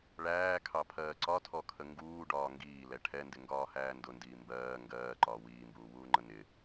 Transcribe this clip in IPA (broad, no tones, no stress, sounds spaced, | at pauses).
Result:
ɭ æː kʰ ɑ pʰ ɜː ǀ ɒ tʰ ɔ kʰ ə ŋ ɡ uː ɖ ɒː ŋ ɡ iː l ɛ ʈʰ ɛ n d ɪ ŋ ɡ ɒː h æː n d ʊ n d iː m b ɜː ŋ ɡ ɜː ǃ ɒː w iː m b uː w uː ŋ͡ǃ ə n ɪ